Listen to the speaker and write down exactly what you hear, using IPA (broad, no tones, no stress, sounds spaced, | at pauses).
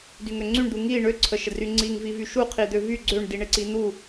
d y ŋ ø ŋ͡ǀ y ɳ d̪ u ŋ i ɳ ø ǀʰ ə ʃ ə d r y ŋ͡ǀ i ŋ v i v y ʃ u qʰ i d̪ ø v y ɡ͡ǀ ø ɳ d i ɳ e ǀ i n̪ u